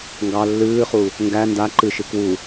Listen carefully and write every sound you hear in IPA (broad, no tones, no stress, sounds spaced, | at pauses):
ŋ ɡ ɑ lː ɨː χ u | ŋ ɡ æ n d a ǃ ɨ ʃ ɨ k w u